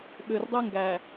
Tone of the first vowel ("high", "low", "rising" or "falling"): low